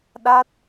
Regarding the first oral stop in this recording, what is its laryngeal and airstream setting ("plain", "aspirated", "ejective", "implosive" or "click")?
implosive